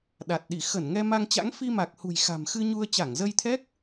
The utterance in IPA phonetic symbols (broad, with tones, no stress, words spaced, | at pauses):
ɗa˨˩t̚ɗi˧˩ xə˧˩n ŋɛ˧ma˧ŋt͡ɕa̰˧˥ŋ fi˧ma˨˩k̚hṳ˨˩j xa̤˨˩mxɨ˧ɲu˧ə̯ t͡ɕa˧˩ŋzə˧jt̪ʰɛ˦˥k̚